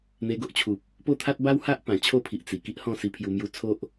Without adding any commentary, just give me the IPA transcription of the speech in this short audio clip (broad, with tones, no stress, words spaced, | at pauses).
n̪e˧ɡo˦ʔt͡ɕʰu˨p̚ | po˦t̪ʰa˦t̚ ba˦wha˦ʔ pã˨˩t͡ɕʰo˥˧pʰi˨ʔ t͡si˨˩ ki˦ʔhɔ̃˥˧si˧pʰju˧ mju˧ t͡sʰo˦ʔ